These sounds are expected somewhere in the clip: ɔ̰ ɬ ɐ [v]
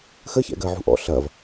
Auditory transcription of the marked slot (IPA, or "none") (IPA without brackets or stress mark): v